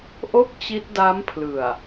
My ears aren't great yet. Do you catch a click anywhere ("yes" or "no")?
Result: no